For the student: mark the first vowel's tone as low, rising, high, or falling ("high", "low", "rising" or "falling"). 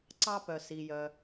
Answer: high